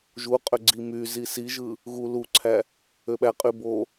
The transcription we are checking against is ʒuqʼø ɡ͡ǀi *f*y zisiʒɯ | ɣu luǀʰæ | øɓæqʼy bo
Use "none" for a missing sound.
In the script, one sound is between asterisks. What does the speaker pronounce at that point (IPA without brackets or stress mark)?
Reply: m